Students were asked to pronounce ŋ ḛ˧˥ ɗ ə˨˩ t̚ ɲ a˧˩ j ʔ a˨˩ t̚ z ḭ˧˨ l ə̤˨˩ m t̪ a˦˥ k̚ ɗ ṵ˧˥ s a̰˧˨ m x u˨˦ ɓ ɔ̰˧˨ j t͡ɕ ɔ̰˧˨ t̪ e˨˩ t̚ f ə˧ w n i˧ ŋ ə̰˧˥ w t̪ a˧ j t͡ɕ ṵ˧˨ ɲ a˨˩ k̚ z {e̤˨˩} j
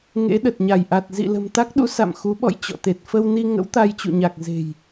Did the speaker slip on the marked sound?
no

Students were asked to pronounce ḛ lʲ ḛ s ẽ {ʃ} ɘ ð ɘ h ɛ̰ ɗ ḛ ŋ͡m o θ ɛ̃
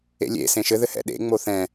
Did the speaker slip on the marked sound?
no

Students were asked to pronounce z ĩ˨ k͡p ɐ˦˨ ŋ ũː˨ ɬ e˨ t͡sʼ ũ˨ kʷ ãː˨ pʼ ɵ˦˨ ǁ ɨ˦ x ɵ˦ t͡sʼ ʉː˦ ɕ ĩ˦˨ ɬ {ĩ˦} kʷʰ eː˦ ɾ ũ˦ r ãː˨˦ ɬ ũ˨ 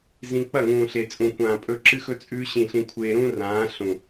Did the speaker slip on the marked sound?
no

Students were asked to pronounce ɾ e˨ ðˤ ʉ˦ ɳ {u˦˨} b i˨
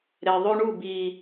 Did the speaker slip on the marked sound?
no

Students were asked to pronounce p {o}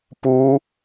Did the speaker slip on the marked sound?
yes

